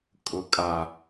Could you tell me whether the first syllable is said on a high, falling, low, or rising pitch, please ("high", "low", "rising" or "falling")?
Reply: low